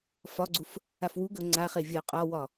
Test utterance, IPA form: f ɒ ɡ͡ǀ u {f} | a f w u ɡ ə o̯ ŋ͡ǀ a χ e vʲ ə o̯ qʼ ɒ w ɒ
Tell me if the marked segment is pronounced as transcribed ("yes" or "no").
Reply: yes